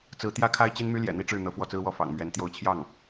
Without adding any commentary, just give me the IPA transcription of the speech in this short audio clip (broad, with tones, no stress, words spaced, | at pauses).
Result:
t͡sɹ̩˧˥t̪jä˥kʰa˥ɪ̯ t͡ɕi˥nmy˥ ljɛ̰˨˩n̪i˥ʈ͡ʂɻ̩˥˩ n̪ɤ˧˥fwɔ˥˩t͡sɹ̩˥wɔ˥˩ fɑ̰˨˩ŋmɥɛ˧˥n t̪jo˧˥ʊ̯t͡ɕʰjɑ˥˩ŋ